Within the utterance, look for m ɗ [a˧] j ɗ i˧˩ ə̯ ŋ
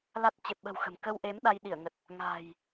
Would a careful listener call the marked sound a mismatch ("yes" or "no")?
no